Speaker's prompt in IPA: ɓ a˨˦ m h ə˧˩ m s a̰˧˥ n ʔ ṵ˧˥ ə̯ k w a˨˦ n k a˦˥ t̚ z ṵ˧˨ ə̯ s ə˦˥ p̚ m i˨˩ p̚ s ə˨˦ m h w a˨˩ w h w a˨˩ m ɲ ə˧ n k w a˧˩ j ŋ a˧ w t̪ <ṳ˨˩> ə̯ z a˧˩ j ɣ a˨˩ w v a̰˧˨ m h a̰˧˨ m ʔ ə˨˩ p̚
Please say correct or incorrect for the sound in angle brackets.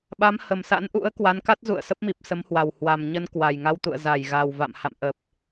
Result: incorrect